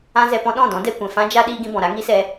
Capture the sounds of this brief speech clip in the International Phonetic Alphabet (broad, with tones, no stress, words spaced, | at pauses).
ã˦zɛ˧pɔ̃˦ ɗɔ̃˦˨dɔ̃˨˦dɛ˧ kʷɛ̃˨fã˦d͡ʒa˦ ɗiː˦ɡĩ˦bɔ̃˨ ɾa˦ŋi˦sɛ˧